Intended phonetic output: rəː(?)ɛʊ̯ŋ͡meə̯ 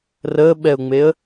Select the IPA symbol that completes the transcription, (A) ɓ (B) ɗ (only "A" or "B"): A